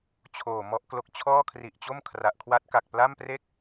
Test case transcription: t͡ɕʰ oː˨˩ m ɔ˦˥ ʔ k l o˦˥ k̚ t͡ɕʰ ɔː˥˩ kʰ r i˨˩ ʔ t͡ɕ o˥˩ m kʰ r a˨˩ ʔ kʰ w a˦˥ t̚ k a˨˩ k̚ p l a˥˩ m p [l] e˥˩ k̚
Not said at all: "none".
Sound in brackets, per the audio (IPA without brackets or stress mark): r